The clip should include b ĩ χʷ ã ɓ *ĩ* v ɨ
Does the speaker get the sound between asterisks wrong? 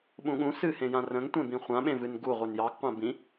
yes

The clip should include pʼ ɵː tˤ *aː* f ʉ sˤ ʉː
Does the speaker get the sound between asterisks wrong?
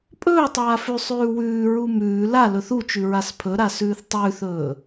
no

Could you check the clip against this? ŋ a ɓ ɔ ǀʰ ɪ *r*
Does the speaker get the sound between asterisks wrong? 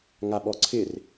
no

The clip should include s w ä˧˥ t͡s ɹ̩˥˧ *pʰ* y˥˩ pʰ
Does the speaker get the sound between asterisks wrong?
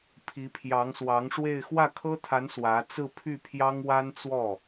no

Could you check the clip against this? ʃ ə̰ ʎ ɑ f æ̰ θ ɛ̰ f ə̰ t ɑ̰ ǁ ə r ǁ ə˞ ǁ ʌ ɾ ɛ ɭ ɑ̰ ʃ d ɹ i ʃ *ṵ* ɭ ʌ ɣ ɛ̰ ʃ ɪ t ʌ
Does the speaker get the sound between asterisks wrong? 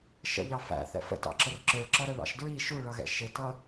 yes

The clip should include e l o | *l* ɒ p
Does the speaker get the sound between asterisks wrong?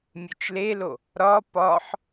yes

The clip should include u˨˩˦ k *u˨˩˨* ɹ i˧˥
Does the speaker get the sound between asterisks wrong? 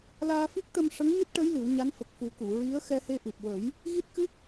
no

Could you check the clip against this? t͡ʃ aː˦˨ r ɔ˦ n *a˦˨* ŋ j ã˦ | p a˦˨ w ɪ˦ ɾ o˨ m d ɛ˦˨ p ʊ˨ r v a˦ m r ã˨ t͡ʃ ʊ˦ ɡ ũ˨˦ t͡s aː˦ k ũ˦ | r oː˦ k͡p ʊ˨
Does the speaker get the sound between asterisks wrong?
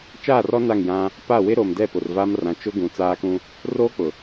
no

